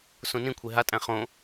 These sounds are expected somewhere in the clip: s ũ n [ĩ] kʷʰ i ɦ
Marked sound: correct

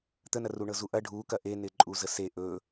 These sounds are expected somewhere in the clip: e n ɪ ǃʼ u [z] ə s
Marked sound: correct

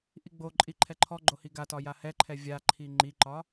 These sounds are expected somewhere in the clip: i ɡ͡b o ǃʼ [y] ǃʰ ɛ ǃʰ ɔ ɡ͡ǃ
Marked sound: incorrect: i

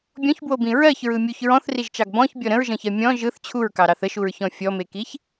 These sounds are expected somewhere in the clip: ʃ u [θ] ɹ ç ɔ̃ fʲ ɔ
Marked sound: incorrect: none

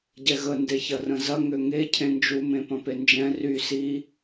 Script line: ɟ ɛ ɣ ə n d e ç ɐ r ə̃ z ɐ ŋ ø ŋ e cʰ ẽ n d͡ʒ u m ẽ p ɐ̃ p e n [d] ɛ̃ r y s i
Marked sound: incorrect: d͡ʒ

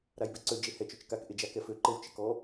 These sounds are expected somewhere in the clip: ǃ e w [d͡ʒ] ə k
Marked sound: incorrect: t͡ʃ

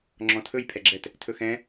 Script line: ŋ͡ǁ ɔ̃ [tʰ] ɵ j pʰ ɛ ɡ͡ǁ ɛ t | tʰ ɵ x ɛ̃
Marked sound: correct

